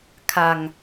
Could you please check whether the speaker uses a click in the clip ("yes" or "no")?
no